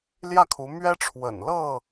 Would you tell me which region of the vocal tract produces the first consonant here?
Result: tongue tip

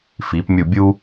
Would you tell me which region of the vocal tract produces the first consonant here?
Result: lips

